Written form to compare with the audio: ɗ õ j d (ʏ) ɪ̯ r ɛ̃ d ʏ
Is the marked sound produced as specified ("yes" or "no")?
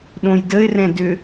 no